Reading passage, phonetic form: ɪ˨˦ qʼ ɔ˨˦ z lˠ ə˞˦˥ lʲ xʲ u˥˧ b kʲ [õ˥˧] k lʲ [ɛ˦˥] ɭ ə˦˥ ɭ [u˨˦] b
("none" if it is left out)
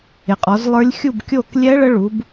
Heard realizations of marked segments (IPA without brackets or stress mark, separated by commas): o˥˧, ɛ˦˥, u˨˦